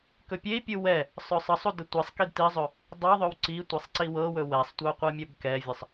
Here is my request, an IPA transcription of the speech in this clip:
kɵpʲei̯pʲu wɛ | sˤœsˤəsˤu dətʷesˤkid tizˤɵ | dˤɤðˤɵw ǀi tʷesˤǀiwɤwɵ wɛsˤtʷœ qʷɤmʲœbkɛvʲəsˤ

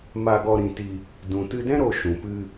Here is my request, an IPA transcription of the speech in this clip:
ma˧ɡɔ˧ɾĩ˧ti˧ | dũ˨tɨ˧dɛ̃˦ ɾo˧ʃũ˨pɨ˧

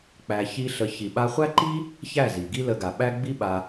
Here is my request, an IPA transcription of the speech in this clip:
k͡pæ˧ çi˦ ɬə˧ çi˨ɓa˧χʷæ˦ǃi˦ | çæ˦˨zi˨ɡi˦lə˧ ɡa˨ ɓæ˦ɡ͡bi˦ɓa˧

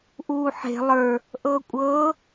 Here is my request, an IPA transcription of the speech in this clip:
ʔuːħe̤ lˠə˞ | ʔɤːkʷʼɤː

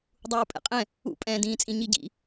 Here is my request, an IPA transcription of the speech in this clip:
dˤuːpʼɛ̰qʼɛ̃ | ṵpʼɛ̃ːdĩːt͡sʼĩ ɲiɟḭ

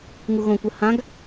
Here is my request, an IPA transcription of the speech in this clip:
ŋuɣõkʷə hãɡ

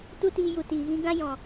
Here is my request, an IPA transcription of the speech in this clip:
tu˦tiː˧ju˨ tiː˨ɣĩ˦ ɡã˦jɔ̃˨

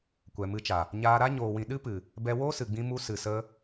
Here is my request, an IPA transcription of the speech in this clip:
kʷɛ˨mɨ˧t͡ʃa˨ | ɲaː˧ɾa˦ ɲoː˨wĩ˨ɗɨ˦pɨ˨ | bɛ˧woː˦sɨ˨ ɡ͡bĩ˧mu˧ sɨ˨sə˧

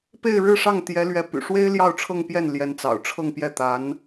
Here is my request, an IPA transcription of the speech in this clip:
pe˥˧ɪ̯ɻɻ̩˥˧ ʂɑ˥˩ŋt̪jɛ˧˥lɥɛ˧˥py̰˨˩ ʂwe˥ɪ̯ ljɑ˥˧ʊ̯ʈ͡ʂʰɤ˥˧ŋpjɛ˥˩n ljɛ˧˥nt͡sɑ̰˨˩ʊ̯ʈ͡ʂʰɤ˥˧ŋ pjɛ˥˩t̪a˧˥n

